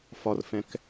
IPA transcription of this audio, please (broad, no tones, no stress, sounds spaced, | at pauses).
f ɒ r f ɛ̃ k